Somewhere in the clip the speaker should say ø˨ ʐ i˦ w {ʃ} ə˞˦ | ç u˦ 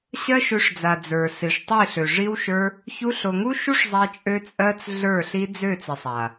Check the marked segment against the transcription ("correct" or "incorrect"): correct